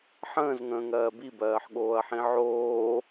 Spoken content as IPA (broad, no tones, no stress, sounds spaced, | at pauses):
ħ ə̃ː z ŋ ə̃ː ŋ ɜː b i b ɜː ħ ɠ oː ɐ̯ ħ ĩ ʕ oː